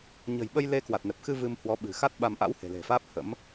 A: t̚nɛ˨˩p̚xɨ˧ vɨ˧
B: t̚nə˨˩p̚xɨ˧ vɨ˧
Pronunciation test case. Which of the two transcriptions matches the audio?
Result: A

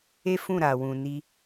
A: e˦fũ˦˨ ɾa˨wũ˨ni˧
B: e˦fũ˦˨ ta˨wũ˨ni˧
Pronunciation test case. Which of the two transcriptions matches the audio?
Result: A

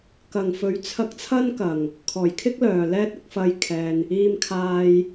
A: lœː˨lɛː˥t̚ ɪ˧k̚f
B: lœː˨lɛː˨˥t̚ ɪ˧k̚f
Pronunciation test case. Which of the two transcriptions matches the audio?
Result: A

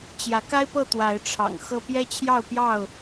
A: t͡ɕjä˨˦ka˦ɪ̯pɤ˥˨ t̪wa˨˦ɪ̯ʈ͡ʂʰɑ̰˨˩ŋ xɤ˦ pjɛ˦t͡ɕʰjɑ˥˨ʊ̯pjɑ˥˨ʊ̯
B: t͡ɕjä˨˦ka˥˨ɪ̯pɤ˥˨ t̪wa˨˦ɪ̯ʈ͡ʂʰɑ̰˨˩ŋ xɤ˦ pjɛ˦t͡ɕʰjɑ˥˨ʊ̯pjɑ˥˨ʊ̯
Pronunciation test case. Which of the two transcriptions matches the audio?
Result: A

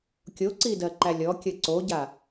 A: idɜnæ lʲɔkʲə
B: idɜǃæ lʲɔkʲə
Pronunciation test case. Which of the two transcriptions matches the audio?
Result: B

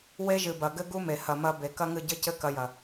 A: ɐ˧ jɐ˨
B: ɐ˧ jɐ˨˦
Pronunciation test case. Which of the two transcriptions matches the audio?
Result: A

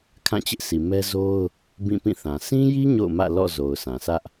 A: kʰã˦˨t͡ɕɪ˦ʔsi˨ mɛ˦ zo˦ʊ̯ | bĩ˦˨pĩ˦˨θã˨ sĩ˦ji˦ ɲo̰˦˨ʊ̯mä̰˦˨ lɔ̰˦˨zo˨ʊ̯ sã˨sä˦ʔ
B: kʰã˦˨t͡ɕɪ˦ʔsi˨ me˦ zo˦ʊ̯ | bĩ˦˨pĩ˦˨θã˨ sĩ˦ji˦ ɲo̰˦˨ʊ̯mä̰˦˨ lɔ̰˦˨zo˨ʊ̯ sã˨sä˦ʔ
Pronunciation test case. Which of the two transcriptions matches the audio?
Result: A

